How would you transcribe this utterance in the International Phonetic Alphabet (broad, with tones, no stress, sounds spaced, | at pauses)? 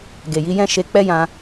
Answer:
ɡ e˨ j i˨˦ j ɛ̃˦ ʃ e˧ k͡p ɛ˦ j ã˧